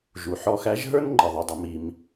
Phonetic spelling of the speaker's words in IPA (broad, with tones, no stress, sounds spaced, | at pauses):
ʒ u˩ ħ ɔ˧ x æ˧˥ ʒ ɦ ə˞˥ n ŋ͡ǃ ɪ˩ ðˤ ʊ˩˧ dˤ ʊ˩˧ m i˩˧ m